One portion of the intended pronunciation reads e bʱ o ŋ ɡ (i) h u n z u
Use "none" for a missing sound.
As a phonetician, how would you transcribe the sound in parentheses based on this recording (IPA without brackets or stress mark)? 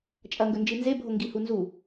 i